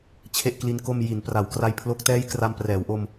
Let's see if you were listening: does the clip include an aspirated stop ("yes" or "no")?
yes